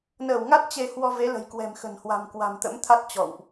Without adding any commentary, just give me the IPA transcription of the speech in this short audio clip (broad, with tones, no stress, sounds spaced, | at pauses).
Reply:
n əː˧˩ w ŋ a˦˥ t̚ t͡ɕ e˧ h w ɔ˧ v e˨˦ l ə̤˨˩ j k w ɛ̤˨˩ m x ə̤˨˩ n h w a̤˨˩ m k w a̤˨˩ m t̪ ə̰˧˥ m t̪ʰ a˦˥ t̚ t͡ɕ ɔ̰˧˨ w ʔ